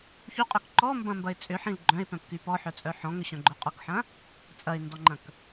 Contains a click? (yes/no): yes